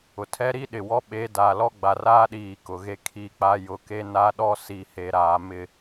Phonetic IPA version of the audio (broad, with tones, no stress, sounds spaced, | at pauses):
ʊ˨ tʰ ɛ˦ ɾ i˦ ɗ ɪ˨ w ɔ˦ ɓ e˨˦ d aː˨ l ɔ˦ ɡ͡b a˨ r aː˦ ɗ iː˨ k ʊ˨ ɣ e˦ kʰ i˦ k͡p a˦ j ʊ˦ k e˦ n a˦ ɗ ɔ˦ s i˨ h e˨ ɾ aː˨ m ɪ˦˨